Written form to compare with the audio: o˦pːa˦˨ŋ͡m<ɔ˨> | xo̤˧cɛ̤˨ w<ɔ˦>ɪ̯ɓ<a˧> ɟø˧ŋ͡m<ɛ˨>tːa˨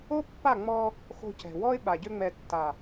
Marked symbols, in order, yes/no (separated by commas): no, yes, no, yes